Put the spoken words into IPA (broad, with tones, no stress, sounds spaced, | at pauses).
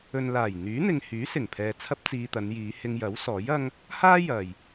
ɵ˨ n l aː˨˩ j n̪ yː˨˥ n̪ ɪ˨ ŋ h yː˨˥ s ɪ˨˩ ŋ pʰ ɛː˨ t͡sʰ ɐ˥ p̚ t͡s iː˧ t̪ ɐ˨˧ n j iː˨˧ h ɪ˧ ŋ j ɐ˨˥ w s ɔː˨˥ j ɐ˥ ŋ | h aː˥ j ɐ˨ j